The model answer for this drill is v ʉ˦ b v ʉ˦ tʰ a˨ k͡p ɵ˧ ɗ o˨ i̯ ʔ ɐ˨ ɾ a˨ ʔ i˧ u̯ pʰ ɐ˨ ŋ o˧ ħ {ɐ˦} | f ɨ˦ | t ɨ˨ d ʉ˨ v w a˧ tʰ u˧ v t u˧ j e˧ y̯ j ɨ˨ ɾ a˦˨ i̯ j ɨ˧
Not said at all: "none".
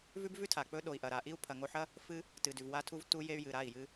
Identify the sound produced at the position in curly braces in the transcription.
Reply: ɐ˦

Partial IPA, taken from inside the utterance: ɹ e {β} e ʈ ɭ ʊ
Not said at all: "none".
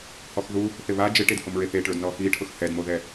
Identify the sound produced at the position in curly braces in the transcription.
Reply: θ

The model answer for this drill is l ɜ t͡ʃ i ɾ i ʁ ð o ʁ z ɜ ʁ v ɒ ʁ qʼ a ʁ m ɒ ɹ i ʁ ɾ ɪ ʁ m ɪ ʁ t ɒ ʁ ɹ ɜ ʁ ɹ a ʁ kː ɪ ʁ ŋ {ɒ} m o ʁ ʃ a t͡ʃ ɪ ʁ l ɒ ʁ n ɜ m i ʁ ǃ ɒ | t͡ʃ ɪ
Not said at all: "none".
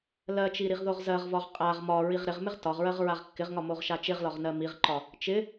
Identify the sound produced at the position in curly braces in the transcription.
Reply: ɒ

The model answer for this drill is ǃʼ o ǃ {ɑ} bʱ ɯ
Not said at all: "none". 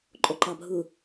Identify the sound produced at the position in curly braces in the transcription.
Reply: ɑ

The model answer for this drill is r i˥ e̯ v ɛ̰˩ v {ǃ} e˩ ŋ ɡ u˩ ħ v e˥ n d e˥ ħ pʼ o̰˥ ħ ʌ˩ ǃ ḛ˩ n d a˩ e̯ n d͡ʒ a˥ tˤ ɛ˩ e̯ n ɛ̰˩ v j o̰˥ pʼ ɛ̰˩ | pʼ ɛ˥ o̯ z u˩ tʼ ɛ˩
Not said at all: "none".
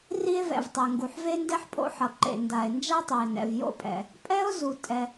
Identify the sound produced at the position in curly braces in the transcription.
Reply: tˤ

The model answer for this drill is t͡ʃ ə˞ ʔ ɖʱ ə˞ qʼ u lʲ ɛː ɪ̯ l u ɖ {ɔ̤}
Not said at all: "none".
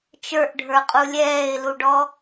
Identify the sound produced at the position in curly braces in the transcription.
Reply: ɔ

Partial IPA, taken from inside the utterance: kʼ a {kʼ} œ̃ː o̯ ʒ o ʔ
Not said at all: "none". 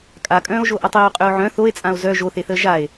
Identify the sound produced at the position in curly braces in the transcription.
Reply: kʼ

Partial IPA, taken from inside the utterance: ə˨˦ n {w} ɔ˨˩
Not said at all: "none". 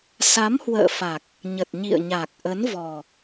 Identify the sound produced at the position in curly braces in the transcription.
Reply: v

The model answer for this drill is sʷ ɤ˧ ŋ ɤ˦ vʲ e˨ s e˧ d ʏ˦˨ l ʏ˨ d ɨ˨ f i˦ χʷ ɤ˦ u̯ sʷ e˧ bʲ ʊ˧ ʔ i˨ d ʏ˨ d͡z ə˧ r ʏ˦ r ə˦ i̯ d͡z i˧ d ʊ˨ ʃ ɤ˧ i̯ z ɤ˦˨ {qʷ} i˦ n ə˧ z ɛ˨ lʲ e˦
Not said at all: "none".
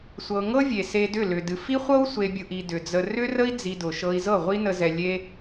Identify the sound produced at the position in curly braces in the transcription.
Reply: ʁʷ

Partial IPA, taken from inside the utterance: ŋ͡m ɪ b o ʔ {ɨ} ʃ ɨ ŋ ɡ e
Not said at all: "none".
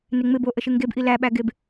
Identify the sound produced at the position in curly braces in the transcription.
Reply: ə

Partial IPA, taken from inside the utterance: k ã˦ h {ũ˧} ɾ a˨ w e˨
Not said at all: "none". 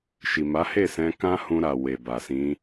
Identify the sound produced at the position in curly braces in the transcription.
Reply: ũ˧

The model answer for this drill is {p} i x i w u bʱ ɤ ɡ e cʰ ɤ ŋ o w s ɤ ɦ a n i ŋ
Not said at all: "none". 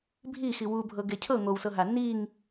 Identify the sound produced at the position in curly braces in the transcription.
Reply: bʱ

